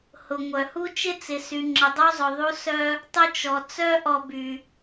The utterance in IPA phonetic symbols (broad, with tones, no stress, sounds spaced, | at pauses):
h ʊ˩ ŋʷ œ˩ h u˥ t͡ʃ ɪ˥ t͡s ɪ˨ s y˨ ŋ͡ǁ ə˨ dˤ u˦ zˤ ʊ˨ ðˤ u˦ s œ˦ | tˤ ʊ˥ t͡ʃ ɔ˨ t͡s œ˦ ʔ ɔ˨ b y˩